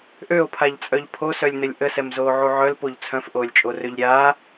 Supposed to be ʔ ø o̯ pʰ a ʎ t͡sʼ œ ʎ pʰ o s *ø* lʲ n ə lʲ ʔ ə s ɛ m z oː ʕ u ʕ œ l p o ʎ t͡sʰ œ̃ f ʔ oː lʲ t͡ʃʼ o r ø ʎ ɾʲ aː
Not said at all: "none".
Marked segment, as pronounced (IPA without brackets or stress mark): œ